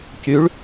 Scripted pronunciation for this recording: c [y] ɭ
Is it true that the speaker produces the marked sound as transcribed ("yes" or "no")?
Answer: yes